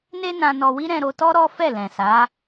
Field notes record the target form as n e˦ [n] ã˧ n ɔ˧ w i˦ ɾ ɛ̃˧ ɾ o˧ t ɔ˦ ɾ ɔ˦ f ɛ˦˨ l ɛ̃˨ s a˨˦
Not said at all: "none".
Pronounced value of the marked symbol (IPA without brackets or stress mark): n